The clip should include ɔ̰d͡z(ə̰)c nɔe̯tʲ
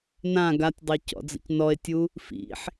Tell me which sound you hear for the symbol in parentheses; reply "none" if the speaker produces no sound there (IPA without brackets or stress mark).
ə̰